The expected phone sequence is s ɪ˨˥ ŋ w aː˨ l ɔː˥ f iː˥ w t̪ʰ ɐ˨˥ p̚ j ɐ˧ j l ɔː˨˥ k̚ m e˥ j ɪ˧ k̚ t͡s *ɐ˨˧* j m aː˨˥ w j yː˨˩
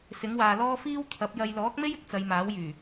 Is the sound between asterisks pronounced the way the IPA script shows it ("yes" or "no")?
yes